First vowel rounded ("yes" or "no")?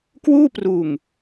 yes